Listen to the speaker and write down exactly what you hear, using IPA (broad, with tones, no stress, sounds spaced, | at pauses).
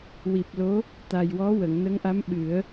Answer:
w i˨˩ p̚ l o˧˥ | t̪ a˨˩ j w ɔ˧˥ w ə˨˩˨ ŋ n ə˧˥ ŋ ʔ a˧˥ m ɓ ɨ˨˩˦ ə̯